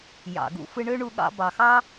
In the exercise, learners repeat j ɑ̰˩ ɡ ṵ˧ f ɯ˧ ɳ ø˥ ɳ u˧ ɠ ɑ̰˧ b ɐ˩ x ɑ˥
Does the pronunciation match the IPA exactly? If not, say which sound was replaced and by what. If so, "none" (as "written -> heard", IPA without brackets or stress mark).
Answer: ɐ˩ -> ɑ˩